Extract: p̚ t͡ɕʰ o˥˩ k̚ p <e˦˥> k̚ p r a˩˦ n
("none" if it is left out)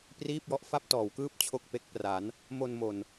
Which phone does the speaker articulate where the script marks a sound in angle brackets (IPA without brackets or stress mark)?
e˦˥